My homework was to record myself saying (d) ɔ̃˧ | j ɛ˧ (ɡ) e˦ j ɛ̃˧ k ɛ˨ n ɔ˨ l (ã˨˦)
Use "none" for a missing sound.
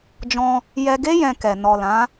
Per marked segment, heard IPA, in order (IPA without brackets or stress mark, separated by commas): d͡ʒ, ɡ, ã˨˦